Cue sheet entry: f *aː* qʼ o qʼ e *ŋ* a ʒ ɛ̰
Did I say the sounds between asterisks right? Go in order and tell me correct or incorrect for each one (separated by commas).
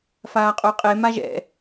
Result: correct, incorrect